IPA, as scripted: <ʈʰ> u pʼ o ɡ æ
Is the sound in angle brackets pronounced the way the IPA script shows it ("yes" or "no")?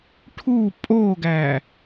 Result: yes